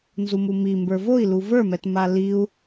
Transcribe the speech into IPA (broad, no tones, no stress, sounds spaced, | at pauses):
n z u m u m i m b ə˞ v o i̯ l u v ə˞ m ɛ t m a l i u̯